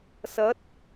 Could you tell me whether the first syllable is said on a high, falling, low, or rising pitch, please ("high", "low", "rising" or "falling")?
rising